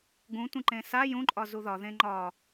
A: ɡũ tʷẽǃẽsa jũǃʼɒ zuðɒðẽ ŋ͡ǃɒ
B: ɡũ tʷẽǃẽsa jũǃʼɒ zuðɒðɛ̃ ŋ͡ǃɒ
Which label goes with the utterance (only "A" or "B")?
A